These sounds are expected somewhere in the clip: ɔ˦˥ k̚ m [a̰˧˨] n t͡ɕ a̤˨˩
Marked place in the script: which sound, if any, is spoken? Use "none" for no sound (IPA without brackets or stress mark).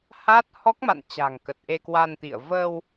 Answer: a̰˧˨